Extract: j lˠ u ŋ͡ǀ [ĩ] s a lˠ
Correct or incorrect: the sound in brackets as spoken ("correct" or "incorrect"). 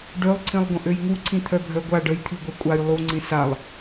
correct